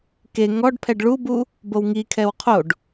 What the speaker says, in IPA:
k e ŋ ɔ ɖ pʰ ɛ ɖ ɭ u b u | b o w ŋ i kʰ ɛ w qʰ o ɖ

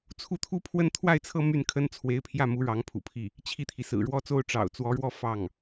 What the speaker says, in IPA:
t͡sʰ u˥˩ t̪ʰ u˥ pʰ w ə˥ n t̪ʰ w a˥˧ ɪ̯ t͡sʰ ɤ˥˧ m y˥˩ n kʰ ə˥ n t͡sʰ w e˧˥ ɪ̯ pʰ j ä˥˩ m u˧˥ ɻ ɑ˧˥ ŋ pʰ ṵ˨˩ pʰ i˥˩ | t͡ɕʰ i˥˩ t̪ʰ i˩ s ɹ̩˨˩ ɻ w ɔ˥ t͡s o˥ ʊ̯ ʈ͡ʂ ɑ̰˨˩ ʊ̯ t͡s w ɔ˧˥ ɻ w ɔ˥˧ f ɑ˥˩ ŋ

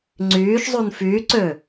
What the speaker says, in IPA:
ŋ͡ǀ yː ʃ zˤ u n f yː ǀ ø

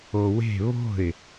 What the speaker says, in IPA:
o w e̤ β o̤ ɪ̯

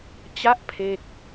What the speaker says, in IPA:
t͡ɕ a˦˥ ʔ pʰ e˥˩ k̚

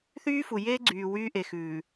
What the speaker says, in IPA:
θ yː˦ f u˨ j eː˦ ɡ͡ǀ yː˨ w yː˦ ʔ e˨ x ʉː˨

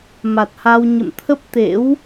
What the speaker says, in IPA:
m a˨˩ t̚ h a˧ w ɲ ə̰˧˨ m t̪ʰ ə˦˥ p̚ t̪ ḛ˧˥ w

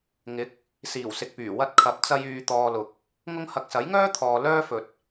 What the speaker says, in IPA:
ŋ ɪ˨˥ k̚ | s iː˨˩ w s ɪ˨ k̚ p yː˨˩ w ɐ˧ t̚ kʰ ɐ˨˥ p̚ t͡s ɐ˧ j yː˧ t̪ ɔː˧ l ʊ˨ k̚ | ŋ ʊ˥ ŋ h ɐ˧ k̚ s ɐ˨˥ j ŋ œː˥ t̪ʰ ɔː˨ l œː˥ f ɵ˨ t̚

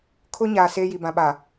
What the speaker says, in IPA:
kʰ ʊ˦ ɲ aː˨ s eː˦ j i˨ b ã˨ ɓ a˨

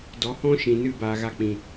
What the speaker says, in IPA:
d ɔ˨ h ɔ̃˦ ʃ ĩ˨ n ɨ˦˨ b aː˧ ɣ a˦ k͡p ĩ˨

